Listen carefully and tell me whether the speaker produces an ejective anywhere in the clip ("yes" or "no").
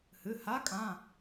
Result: yes